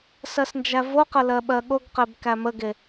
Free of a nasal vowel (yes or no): yes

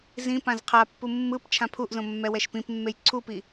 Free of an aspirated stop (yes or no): no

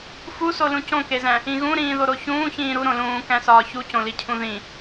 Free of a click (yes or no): yes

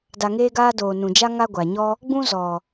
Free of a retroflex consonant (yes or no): yes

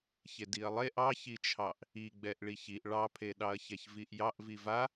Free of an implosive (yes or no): no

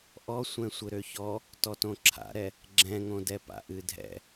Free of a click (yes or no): no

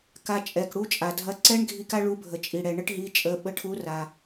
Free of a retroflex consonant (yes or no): no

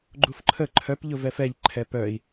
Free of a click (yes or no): no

